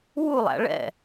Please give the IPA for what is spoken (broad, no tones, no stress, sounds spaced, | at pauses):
w u lˠ æ̰ ɭ ɛ̰